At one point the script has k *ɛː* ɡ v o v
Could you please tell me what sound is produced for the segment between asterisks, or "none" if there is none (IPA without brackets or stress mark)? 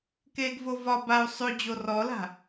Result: eː